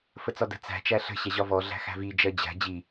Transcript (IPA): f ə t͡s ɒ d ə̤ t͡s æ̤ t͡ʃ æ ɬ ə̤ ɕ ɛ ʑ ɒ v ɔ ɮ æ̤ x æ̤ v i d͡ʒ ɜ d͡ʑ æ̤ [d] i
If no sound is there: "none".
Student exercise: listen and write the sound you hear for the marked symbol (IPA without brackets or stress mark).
d͡ʑ